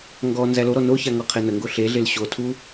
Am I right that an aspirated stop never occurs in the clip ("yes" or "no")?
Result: no